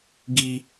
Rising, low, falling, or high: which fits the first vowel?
high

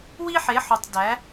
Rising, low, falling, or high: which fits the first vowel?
high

